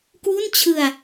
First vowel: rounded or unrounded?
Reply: rounded